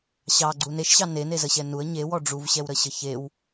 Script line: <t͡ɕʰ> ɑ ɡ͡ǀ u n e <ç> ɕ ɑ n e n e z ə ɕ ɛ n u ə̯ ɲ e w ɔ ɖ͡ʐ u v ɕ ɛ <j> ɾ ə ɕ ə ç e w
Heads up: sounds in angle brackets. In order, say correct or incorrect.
incorrect, incorrect, incorrect

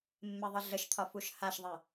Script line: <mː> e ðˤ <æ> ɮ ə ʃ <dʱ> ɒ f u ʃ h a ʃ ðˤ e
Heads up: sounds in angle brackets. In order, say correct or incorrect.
correct, incorrect, incorrect

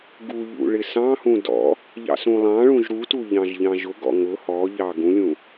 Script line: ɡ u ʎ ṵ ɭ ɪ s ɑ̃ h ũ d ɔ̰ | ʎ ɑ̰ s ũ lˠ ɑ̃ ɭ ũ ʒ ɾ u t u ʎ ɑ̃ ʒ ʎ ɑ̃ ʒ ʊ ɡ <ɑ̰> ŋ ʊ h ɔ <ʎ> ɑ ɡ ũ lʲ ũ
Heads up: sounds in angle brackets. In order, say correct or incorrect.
incorrect, correct

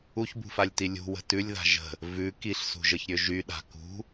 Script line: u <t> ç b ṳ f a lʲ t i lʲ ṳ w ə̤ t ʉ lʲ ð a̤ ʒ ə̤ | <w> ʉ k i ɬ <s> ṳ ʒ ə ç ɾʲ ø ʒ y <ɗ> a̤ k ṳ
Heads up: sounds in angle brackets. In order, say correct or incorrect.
incorrect, incorrect, correct, correct

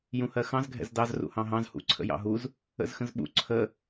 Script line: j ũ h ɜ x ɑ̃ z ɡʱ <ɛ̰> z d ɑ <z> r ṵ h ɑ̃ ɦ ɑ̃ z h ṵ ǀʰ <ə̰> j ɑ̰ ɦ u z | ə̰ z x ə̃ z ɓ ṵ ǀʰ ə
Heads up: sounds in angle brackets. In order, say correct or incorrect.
correct, correct, correct

